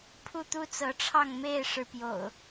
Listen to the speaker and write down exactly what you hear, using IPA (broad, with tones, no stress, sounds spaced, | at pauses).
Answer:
pʰ u˥˨ t̪ u˦ t͡s ɤ˨˦ ʈ͡ʂʰ ɑ˥˨ ŋ m e˥˨ ɪ̯ ʂ ɻ̩˨˦ p j o̰˨˩ ʊ̯